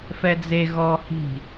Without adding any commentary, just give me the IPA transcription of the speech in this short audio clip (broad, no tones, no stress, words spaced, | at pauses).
fɛd͡ze ɣɔ hi̤